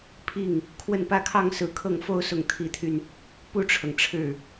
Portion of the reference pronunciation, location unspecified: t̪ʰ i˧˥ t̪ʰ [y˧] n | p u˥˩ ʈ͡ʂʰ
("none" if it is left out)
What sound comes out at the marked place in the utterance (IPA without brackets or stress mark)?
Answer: y˧